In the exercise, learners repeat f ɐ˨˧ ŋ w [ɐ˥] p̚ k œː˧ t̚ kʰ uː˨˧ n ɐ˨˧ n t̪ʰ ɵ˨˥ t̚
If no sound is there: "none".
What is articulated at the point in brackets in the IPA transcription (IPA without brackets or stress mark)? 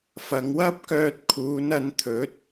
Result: ɐ˥